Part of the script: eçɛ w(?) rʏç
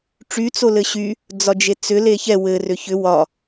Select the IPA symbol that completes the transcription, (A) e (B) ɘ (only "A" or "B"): B